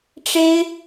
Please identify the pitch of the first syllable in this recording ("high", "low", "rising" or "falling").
high